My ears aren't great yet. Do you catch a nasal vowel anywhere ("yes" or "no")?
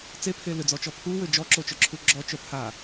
no